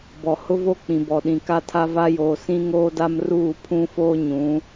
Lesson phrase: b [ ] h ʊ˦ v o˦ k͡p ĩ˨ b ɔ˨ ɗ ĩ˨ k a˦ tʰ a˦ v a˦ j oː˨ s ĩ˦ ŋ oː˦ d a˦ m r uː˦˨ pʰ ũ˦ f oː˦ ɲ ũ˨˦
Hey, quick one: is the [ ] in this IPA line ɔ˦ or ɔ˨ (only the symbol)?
ɔ˨